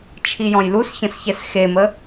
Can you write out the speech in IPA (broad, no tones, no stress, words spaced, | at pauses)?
t͡ʃʰijɔ̃jlus çə̃sçɛsxemə